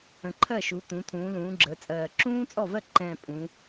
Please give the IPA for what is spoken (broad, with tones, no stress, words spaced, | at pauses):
ə̃˨˩ǃʰɜ˥˩ʃu˩˧ t̪ũ˩˧t̪ʰũː˩˧lũː˩˧ ɡ͡ǁəː˩˧t͡sʼɜː˨˩ ǁũː˥t͡sʼɔ˥˩vɜ˥˩ ǃɛ̃˨˩ pʼũ˩˧